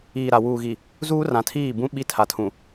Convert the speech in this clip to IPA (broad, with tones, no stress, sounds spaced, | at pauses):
iː˨ ɾ a˨ w uː˨ ɣ i˨ | z uː˦ r ã˨ tʰ iː˦˨ b ũ˦ ɓ i˦ tʰ a˨ tʰ ũ˨